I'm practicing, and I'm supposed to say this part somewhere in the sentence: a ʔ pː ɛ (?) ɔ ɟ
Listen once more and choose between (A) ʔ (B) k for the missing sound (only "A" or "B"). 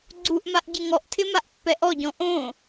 A